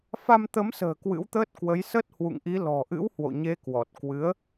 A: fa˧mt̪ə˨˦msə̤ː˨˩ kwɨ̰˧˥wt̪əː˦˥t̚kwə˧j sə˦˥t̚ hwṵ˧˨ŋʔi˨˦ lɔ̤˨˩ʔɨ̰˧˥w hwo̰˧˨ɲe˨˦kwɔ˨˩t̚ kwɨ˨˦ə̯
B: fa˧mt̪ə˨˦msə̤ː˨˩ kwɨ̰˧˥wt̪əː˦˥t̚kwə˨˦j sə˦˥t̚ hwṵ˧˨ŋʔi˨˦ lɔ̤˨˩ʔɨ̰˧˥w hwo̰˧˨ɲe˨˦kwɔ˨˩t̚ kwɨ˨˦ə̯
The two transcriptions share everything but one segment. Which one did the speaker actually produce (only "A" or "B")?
B